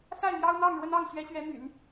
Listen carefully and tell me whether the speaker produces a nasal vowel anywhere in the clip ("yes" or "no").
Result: no